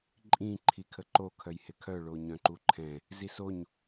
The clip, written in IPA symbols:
ǃʼ ĩ ǃʰ i kʰ ə ǃ o kʰ œ j h ɪ kʰ œ ɭ o ɲ œ̃ ǃ u ǃʰ ɛ̃ | z i s o ɲ

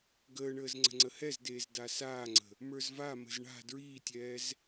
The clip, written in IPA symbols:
ɡ əː ɳ əː z ŋ͡ǀ ə̤ ŋ͡ǀ ə h ɛ z d eː z d a s aː ŋ͡ǀ ə̤ | m ə˞ z v a m ə̤ z ɳ a̤ d ɹ iː tʲ ɛː z

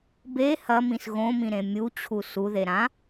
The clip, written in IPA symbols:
b e h ɐ m ĩ s ɣ õ m ĩ ɾ ẽ mʲ u t͡ɕʰ u s u ð e ɾ ã

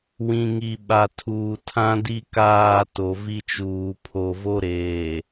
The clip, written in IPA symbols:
w ĩ˨ ŋ i˨ ɓ a˨ tʰ uː˨ tʰ ã˦ d i˦ k aː˦˨ t o˨ v i˦ t͡ʃ uː˨ pʰ o˨ v o˦ ɾ eː˨

